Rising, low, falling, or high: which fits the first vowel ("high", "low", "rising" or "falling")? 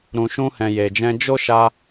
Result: low